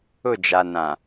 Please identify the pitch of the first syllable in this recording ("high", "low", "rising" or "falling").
falling